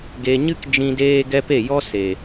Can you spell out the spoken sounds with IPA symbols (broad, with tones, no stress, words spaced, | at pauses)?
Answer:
ɡe˧ ɲɨ˦k d͡ʒĩ˦ deː˦ɡɛ˦pe˦˨ jɔ˦se˨